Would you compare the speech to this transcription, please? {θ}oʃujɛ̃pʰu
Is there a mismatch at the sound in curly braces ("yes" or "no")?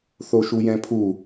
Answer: no